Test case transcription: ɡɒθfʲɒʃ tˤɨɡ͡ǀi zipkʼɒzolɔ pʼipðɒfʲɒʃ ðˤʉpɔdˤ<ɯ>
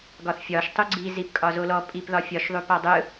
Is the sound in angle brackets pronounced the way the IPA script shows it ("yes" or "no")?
yes